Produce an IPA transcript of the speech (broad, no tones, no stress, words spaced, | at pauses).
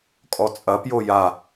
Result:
kʼɔt͡sʼɐpjo ja